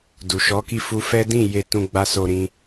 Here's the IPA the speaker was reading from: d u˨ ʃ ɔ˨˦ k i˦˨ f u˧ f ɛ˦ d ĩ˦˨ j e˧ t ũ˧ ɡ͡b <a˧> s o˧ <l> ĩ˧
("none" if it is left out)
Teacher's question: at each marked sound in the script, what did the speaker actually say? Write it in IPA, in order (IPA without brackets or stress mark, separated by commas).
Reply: a˧, ɾ